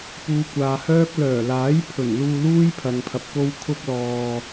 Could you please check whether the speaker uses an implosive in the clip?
no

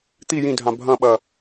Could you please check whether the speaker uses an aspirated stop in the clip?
no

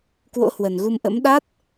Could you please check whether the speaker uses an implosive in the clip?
yes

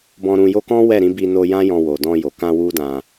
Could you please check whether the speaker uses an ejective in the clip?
no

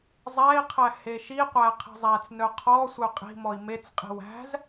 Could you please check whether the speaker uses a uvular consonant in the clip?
yes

